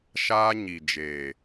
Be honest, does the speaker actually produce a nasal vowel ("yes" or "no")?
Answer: no